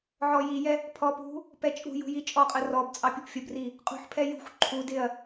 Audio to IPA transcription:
ʕ ɔ j i j ɛ | pʰ ɔ p ṳ | p ɛ t͡ʃʼ ṳ j ṳ j i t͡ʃʼ ɔ qʼ ə r ɔ b t͡sʼ ɑ pʲ u p fʲ ə b r i | qʼ ṳ ħ pʰ ɛ j ṳ xʷ ǃʰ u d ɪ ɐ̯

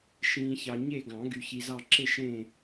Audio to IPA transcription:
ʃ ĩː˨ ç ɑ˨ ɲ e˦˨ ɡ ɑ̃˨˩˦ ɡ y˨ ç i˨ z ɑ˦˨ ǁ e˦˨ ʃ ẽ˦˨

